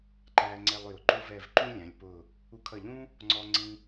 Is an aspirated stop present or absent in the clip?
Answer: present